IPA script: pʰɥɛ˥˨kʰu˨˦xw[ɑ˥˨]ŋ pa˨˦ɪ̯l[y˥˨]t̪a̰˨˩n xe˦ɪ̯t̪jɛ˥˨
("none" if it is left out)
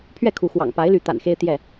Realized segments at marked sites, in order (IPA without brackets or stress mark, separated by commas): ɑ̰˨˩, y˨˦